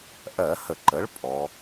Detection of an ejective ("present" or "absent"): present